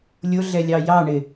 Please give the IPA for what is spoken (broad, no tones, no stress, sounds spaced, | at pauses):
lʲ ʊ ɮ ɛ lʲ ɑ j ɑ ɳ ɪ